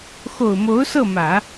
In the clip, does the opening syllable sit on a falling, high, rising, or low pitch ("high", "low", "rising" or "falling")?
low